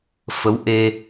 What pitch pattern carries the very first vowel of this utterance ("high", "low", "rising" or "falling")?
rising